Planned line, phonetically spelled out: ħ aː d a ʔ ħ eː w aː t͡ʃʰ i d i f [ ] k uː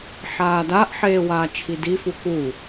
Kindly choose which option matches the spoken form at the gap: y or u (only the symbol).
u